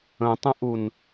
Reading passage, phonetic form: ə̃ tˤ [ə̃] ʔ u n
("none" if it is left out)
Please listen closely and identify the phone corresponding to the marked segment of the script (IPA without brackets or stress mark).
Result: ə̃